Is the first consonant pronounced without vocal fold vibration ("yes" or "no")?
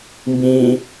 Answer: no